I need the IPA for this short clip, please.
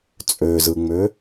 t͡sʼøzɯŋ͡mø

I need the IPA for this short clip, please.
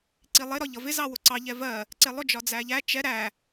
ǀilˠɪ ɾɒʎʌvɪ zɑwʊǀɑ ʎɛvɜ | ǀɪlˠʊ d͡ʒɒd͡zæʎæ t͡ʃɛ ɾæ

